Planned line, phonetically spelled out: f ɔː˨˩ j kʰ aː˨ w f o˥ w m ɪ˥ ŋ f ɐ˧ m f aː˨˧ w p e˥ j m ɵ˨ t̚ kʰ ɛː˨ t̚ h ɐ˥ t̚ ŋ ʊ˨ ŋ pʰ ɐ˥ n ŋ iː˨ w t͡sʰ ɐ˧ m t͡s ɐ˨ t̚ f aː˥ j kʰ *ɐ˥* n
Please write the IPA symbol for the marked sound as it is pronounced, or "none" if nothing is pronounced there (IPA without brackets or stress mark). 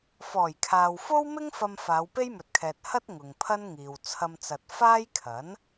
ɐ˨˥